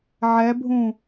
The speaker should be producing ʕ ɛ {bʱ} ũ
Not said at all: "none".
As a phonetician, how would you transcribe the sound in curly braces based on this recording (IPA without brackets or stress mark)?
bʱ